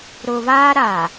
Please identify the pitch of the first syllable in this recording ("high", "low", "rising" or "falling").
low